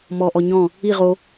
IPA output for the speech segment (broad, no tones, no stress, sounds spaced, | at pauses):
m ɔ ʔ ɔ ɲ ɔ̃ | i ʁ o